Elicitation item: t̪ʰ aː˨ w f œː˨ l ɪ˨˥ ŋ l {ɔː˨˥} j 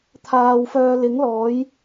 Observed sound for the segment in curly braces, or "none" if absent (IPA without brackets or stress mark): ɔː˨˥